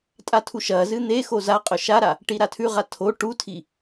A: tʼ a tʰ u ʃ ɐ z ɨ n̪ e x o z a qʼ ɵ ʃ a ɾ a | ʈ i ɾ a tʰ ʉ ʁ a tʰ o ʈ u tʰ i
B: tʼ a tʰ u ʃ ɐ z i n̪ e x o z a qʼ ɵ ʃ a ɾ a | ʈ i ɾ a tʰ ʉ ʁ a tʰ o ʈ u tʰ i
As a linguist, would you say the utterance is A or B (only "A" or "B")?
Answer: A